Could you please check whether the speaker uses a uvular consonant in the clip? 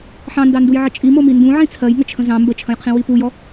yes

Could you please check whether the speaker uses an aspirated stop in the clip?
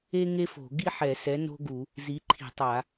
yes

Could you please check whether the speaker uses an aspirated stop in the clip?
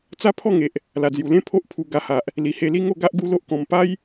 yes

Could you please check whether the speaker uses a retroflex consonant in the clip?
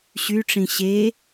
yes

